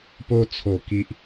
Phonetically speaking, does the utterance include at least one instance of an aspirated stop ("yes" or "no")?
yes